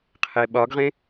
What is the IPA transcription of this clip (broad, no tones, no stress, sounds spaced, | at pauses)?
qʰ e ɓ ɒ ɡ ʁ ẽ